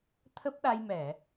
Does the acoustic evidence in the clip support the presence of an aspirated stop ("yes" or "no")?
yes